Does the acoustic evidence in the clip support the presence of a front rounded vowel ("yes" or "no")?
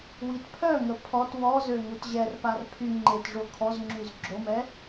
yes